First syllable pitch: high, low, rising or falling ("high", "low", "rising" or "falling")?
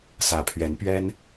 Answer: low